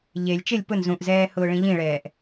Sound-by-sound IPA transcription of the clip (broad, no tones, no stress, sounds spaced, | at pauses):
ʎ e lʲ t͡ʃ ɪ lʲ p ʊ n z ũ ʔ z ɛː h ʊː ɭ ĩ ʎ ĩ ɭ ɛː ʔ